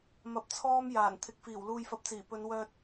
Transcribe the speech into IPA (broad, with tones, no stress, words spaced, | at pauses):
mɐ˨˥p̚ t͡sʰɔː˧m jaː˨˩n t̪ʰɪ˨˥k̚fiː˨˩w luː˨jfɐ˨p̚t͡siː˨˩ pɵ˨˧nwœː˧t̚